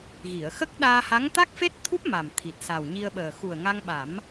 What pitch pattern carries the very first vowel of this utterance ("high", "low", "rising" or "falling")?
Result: low